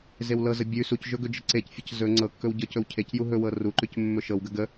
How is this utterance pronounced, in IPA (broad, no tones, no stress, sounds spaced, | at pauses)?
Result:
z e w l ɤ z ə bʲ ʉ s u c ʒ ɵ ɡ ɵ d͡ʒ ə ǀ e c fʲ ə c z ɵ ŋ͡ǀ ɤ kː ɵ w ɟ ɤ c ɵ w cʰ e c j u ɦ ɵ w ɤ r u ǃ ʉ c mː ɵ ʃ ɤ w ɡ ə ɡ ə